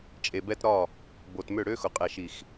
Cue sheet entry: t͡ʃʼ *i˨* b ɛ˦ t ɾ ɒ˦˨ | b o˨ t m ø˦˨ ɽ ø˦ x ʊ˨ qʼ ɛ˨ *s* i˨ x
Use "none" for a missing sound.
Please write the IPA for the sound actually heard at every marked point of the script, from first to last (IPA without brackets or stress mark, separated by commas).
e˨, ʃ